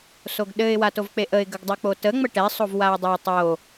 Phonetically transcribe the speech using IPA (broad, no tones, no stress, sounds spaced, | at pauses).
s o ɡ ɗ ɘ ɪ̯ w a t o v k͡p e ʔ ə ɪ̯ ɡ ə ɡ dˤ o k͡p o t ə ŋ͡m ə ʈ ɛ sˤ o v w a ɪ̯ dˤ a tˤ o